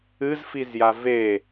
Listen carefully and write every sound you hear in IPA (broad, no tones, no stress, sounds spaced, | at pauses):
ɨ z f i z j a v e